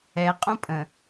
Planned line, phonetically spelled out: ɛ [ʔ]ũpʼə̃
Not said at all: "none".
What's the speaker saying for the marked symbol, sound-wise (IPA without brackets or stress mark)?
qʼ